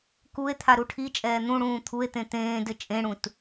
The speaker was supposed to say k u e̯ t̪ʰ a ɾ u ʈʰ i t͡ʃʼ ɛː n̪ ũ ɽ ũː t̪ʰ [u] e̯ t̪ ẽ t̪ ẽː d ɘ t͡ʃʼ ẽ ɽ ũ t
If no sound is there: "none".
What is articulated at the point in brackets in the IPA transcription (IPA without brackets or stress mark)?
u